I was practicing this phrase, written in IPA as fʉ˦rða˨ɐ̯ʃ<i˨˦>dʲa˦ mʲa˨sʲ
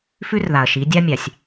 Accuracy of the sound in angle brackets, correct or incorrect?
correct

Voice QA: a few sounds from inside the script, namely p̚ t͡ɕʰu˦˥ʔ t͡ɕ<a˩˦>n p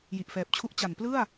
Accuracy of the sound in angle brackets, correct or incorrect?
correct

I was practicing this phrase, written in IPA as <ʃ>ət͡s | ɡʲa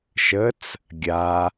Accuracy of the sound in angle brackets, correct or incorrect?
correct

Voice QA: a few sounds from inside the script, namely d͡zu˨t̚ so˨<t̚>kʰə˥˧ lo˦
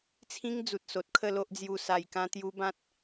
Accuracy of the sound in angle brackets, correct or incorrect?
correct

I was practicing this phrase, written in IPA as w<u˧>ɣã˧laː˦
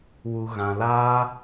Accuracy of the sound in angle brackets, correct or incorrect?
correct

